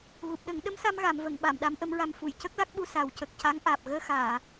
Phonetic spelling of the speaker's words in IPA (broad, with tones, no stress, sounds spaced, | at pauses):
ɣ u˨˩ p̚ ɗ ə˨˩˦ ŋ ɗ ə˧˥ m s a˧ m ɣ a˨˩˨ m v ə˨˩˨ ŋ ɓ a˨˩˨ m ɗ a˧˥ m ʔ ə˧˥ m ɹ a˧ m f u˨˩˨ j c ə˦˥ k̚ l a˦˥ k̚ ɓ u˧ s a˨˩ w c ə˨˩ k̚ c a˧˥ ŋ ʔ aː˨˩ p̚ ɣ əː˧ x aː˨˩˨